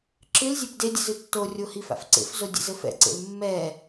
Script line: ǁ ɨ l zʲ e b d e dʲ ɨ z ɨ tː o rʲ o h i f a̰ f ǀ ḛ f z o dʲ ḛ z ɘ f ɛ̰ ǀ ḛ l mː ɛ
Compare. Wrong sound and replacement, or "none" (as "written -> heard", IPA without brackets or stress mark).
none